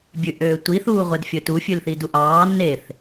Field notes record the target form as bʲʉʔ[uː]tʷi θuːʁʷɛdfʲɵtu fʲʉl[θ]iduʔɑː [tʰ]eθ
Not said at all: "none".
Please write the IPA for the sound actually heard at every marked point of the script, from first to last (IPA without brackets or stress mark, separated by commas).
øː, θ, n